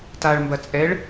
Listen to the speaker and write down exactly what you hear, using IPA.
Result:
t a ɭ m b ɐ t͡sʼ ɛ ɭ

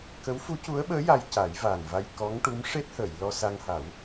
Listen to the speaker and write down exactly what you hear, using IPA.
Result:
k ə˧˥ w f u˧˥ c u˧˥ ə̯ ɓ əː˧˥ j a˧ j c a˨˩˦ j v aː˨˩ n v a˧ j k ɔ˧˥ ŋ ʈ u˧˥ m ʂ e˦˥ t̚ h əː˨˩˨ j l ɔ˧ s a˧ ŋ h a˨˩˦ w

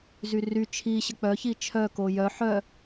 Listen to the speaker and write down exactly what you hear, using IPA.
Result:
z y r y t͡ʃʰ i ɕ ə k͡p œ ç i t͡ʃʰ œ k o j œ ħ œ

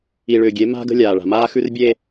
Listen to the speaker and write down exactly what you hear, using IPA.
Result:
i˨ ɭ ʏː˨ ɡʲ e˨˦ m a̤˦ ɡ ə̤˦ lʲ aː˨ ɭ a̤˨ m aː˦ x ʉ˦ r bʲ eː˦

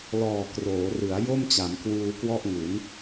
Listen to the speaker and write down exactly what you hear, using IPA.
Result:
l ɔː˨˩ k r oː˩˦ r ɯ˩˦ a̯ j o˥˩ m t͡ɕ a˩˦ m k w uː˧ k w ɔ˥˩ ʔ ŋ u˩˦ n

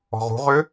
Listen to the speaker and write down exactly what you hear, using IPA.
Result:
ɔ̤ ʁ ṳ ʁ ø

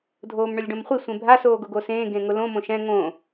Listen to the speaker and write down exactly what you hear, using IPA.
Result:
dʱ oː m ɳ ʊ lʲ ɖ õ m χʷ i sʷ ẽ bʱ a s oː ɡ ʊ ɡ o s ẽː ɡ ẽ ŋ ʊ l õ m õ ʃ ɛ̃ ŋ õ

